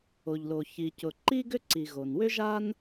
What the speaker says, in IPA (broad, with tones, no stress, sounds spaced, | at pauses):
o˩ ʎ l o˩ ç i˩ c ʊ˩ ǃ i˥ ɡ ʏ˥ ǀ i˩ ɣ o˩ n w ʏ˥ ʒ a˥ n